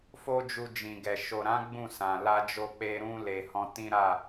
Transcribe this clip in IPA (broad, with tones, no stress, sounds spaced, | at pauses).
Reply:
f o˦ d͡ʒ u˧ d͡ʒ ĩ˨ ɡ ɛ˨ ʃ o˨ ɾ ã˨˦ ɡ͡b ũ˦˨ s ã˨ l a˧ d͡ʒ o˧ k͡p e˧ ɾ ũ˧ l e˨ h ɔ̃˧ t ĩ˦ ɾ a˦˨